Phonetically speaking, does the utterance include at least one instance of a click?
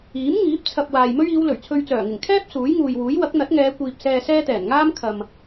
no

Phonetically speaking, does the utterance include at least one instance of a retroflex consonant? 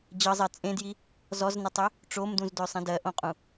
yes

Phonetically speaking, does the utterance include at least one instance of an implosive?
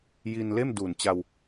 no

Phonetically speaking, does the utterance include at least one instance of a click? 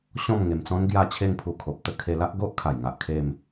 no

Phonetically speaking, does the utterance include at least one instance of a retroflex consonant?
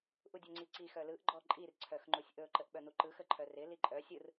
no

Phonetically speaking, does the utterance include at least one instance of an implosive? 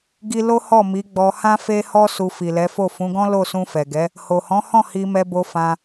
no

